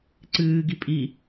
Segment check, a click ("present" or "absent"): present